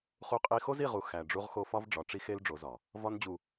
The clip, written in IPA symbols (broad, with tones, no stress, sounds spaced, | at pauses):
χ u˦ qʼ i˦ x o˦ z i˦˨ ʁ u˨ x æ˨ ɖ͡ʐ u˦ ʁ x o˦ f ɒ˦ v ɖ͡ʐ ɒ˨ ʈ͡ʂ i˦ x e˦ l ɖ͡ʐ o˨˦ z ɒ˨ | v ɒ˦ n d͡ʑ u˨